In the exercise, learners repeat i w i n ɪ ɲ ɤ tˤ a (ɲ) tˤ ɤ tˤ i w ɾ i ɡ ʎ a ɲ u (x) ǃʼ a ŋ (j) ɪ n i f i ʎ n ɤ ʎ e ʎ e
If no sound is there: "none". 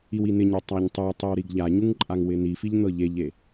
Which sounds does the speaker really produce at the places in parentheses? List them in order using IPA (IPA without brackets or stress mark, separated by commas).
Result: ɲ, ŋ, w